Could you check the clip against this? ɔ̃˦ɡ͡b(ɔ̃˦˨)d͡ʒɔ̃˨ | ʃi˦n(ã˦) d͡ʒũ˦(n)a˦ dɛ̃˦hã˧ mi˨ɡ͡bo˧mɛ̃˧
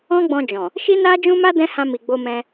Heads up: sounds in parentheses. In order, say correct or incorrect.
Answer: incorrect, incorrect, incorrect

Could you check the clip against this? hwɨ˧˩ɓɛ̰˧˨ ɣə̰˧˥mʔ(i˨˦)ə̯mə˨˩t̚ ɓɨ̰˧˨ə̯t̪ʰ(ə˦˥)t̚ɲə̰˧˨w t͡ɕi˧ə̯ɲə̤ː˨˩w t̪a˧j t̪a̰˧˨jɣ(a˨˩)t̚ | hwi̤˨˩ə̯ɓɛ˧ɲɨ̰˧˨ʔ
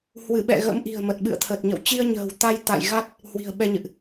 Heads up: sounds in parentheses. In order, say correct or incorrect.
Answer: incorrect, incorrect, incorrect

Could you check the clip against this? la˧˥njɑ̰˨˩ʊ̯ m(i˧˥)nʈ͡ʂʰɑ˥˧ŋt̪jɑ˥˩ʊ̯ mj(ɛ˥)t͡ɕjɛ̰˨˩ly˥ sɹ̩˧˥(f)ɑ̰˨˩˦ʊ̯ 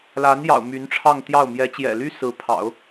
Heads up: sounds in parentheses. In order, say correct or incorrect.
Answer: incorrect, incorrect, incorrect

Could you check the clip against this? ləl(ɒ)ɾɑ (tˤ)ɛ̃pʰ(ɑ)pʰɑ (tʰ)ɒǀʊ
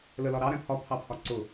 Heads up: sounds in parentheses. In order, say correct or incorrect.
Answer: correct, incorrect, incorrect, incorrect

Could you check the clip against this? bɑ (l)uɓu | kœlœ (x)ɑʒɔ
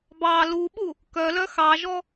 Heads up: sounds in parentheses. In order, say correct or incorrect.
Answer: correct, correct

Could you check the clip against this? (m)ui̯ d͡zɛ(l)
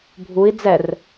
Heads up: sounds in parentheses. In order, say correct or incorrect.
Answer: incorrect, incorrect

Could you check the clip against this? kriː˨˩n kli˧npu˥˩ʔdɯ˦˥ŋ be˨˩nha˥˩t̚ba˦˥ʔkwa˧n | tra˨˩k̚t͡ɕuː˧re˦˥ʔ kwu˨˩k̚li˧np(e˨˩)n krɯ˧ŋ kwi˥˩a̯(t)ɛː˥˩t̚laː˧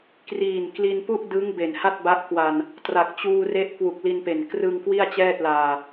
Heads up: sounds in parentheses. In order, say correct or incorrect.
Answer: correct, incorrect

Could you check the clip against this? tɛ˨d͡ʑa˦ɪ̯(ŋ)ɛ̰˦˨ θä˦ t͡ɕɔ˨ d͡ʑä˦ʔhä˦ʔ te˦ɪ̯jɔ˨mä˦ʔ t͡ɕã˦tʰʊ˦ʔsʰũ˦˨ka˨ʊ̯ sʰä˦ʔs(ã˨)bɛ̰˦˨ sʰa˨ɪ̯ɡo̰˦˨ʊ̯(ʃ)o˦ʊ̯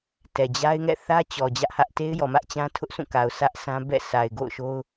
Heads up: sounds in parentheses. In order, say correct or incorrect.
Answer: correct, incorrect, correct

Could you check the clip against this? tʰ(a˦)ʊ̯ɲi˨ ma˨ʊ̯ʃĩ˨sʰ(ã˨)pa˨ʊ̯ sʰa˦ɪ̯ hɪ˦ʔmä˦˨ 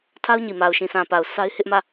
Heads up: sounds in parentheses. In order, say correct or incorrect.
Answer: correct, correct

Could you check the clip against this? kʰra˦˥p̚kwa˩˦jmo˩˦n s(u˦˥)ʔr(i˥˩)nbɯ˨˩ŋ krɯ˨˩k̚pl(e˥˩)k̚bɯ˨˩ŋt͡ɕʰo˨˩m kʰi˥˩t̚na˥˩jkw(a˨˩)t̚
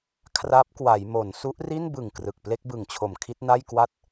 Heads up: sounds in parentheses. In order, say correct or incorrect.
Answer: correct, correct, correct, incorrect

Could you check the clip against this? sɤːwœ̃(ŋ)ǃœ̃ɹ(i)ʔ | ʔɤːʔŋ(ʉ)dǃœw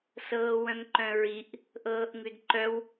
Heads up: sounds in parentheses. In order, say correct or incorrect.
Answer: correct, correct, correct

